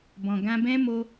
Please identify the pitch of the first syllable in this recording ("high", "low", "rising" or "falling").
low